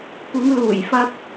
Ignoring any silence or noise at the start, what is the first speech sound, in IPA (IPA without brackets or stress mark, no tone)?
kʷ